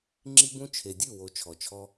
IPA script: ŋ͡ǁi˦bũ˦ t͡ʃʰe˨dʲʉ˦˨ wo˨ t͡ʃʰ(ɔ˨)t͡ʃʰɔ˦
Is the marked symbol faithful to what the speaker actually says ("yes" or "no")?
yes